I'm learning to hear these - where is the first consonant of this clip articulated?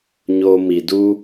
palate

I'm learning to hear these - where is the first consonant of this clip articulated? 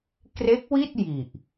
velum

